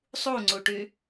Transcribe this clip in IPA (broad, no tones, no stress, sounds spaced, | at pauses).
sˤ u ŋ͡ǀ u ʈ y